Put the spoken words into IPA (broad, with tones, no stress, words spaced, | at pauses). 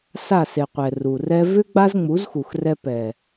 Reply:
sa˦˨se˨qʷɛ˨ ru˨rɛ˧ vʏ˦ ɡ͡ba˦zŋ͡mu˨˦zxu˨xrɛ˧ pɛ˨